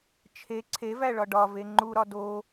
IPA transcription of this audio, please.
t͡ʃʰ e ǀʰ e v æ ɭ ɒ ɖ ɒ v e ŋ͡ǃ u ɾ ɒ d o

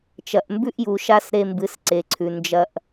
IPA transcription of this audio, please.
t͡ʃ ɐ˨ ʔ m b ʉ˦ ʔ j u˨ ʃ a˦ s ɾ e˦ m b ɨ˨˦ s ǀ e˨ ǀʰ ʉ˨ n d͡ʒ ɐ˦ ʔ

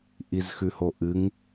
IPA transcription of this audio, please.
ʔ i z x ʉ h o ʔ ɨ ŋ

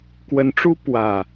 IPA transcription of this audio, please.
k w ə˨˦ n ʈ͡ʂ u˦ p w ä˨˩

